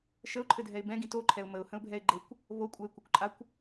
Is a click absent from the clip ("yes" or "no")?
no